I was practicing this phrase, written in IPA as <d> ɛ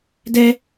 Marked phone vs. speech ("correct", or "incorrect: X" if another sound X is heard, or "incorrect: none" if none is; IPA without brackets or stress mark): correct